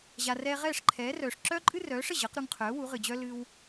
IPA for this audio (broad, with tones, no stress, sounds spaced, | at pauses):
ʑ a˩ r ɛː˧ ʁ ɛː˥˩ ʂ ǃʰ ɛː˩˥ r œː˩ ʂ ǁ œː˥ ǃʼ ɨ˥ r œː˩˥ ʂ ə˥˩ ʑ ɤ˩˥ q ɾ u˧ ŋ qʰ œː˩˥ w u˩˥ ʁ ɨ˩ d͡ʑ œ˥ l ɨ˧ w